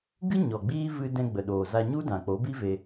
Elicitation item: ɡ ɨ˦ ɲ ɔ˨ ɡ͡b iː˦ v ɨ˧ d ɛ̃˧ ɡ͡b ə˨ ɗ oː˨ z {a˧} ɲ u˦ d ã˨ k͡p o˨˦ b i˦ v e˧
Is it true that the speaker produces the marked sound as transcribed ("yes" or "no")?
yes